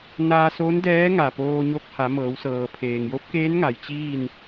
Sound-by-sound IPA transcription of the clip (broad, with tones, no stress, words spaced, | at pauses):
naː˧so˧˥ndɛː˧˥ ŋa˧˩poː˧ ɲo˧k̚ha˩˧ mɤː˩˧wsɤː˩ pʰeː˩ŋjo˧˥p̚keː˧˥n ŋa˩jt͡ɕiː˥˨n